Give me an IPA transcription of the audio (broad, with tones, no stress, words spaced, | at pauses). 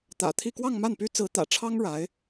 t̪ä̰˨˩t̪ʰi˥˧ kwɑ˥˧ŋma˥˩npy˥t͡sɹ̩˧˥ t̪ä̰˨˩ʈ͡ʂʰɑ˥ŋ ɻa˧˥ɪ̯